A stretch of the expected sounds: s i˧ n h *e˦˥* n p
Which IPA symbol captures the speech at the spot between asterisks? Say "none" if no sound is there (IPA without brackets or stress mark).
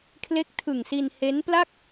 e˦˥